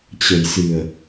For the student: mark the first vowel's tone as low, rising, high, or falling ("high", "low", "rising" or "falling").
low